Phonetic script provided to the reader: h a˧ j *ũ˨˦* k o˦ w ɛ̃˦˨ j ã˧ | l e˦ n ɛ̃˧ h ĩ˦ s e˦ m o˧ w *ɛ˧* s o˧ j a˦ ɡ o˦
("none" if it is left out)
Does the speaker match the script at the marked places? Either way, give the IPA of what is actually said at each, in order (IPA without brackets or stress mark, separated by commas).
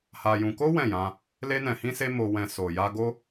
ũ˧, ɛ̃˧